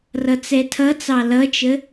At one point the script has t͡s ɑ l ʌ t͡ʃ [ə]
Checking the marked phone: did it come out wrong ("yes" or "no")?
no